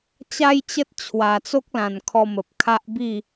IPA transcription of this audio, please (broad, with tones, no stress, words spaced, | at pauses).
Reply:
t͡ɕa˦jt͡ɕə˦t̚ t͡ɕʰwa˨˩t͡so˦k̚lã˨˩n kʰɔ˧mə˨p̚ kʰa˦ʔbi˥˧